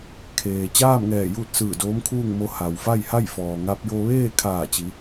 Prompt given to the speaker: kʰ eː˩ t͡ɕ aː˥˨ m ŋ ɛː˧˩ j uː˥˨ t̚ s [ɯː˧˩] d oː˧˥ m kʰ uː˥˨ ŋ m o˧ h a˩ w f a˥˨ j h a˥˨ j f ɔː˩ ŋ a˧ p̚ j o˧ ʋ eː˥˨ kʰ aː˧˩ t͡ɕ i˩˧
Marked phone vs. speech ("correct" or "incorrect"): correct